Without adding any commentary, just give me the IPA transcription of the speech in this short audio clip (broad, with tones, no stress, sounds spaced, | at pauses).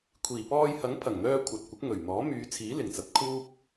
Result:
kʷʰ iː˨˩ p ɔː˧ j h ɐ˨˥ ŋ pʰ ɐ˨˩ ŋ n̪ œː˧ kʷʰ ɐ˨ t̚ kʷ ɪ˨˥ k̚ ŋ ɵ˨˩ ɥ n̪ ɔː˨˥ m yː˨˧ t͡sʰ iː˨˥ l ɪ˨˩ ŋ t͡s ɐ˨˥ t̚ kʰ uː˥ p̚